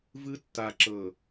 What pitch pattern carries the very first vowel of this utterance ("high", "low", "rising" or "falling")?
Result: high